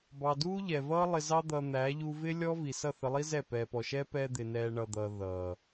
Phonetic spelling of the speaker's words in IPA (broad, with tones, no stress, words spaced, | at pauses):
bɑ˨duː˦ʎɛ˨vʌː˦ lˠɪ˧zɑ˦ d̪ʌː˧n̪æː˨˦ ʎu˧vɪ˦lʲɔ˦ vi˨sʌ˦˨θə˧lˠi˦ zɛ˦˨ pɛː˨pɔ˨ʃɛː˦ pɛː˧d̪ɪː˨ nɛː˧ ɳʌ˨d̪ʌː˨ ðʌː˨